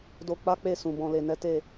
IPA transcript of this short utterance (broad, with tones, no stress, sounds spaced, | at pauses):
d o˧ k͡p a˦ k͡p e˦˨ s ũ˨ b ɔ̃˨ l e˨ n ɛ˨˦ t e˦˨